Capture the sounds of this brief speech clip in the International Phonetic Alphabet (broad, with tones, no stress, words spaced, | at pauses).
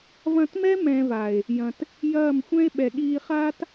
vɐ̃˧tmɛ˦ mɛ̃˧va˨e̯ | jɐ̃˨t | jɐː˦˨mxʷɛ̃˦e̯ ɓɛ˨ɠiː˧χaː˦t